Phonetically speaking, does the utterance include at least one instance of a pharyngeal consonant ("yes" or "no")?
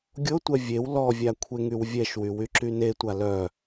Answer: no